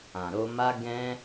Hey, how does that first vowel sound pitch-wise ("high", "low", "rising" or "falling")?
low